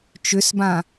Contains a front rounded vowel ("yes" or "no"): yes